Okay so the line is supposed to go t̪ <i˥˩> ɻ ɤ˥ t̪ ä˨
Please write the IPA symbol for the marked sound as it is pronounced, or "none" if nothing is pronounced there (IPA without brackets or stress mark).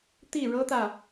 i˥˩